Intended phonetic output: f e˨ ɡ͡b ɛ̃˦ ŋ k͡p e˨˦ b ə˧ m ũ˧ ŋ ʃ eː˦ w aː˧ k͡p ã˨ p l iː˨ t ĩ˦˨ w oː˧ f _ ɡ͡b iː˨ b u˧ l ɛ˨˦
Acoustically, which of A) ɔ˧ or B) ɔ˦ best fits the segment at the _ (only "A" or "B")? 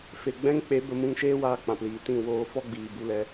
B